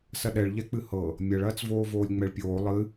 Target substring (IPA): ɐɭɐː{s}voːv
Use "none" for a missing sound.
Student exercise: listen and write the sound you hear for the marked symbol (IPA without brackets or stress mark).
t͡s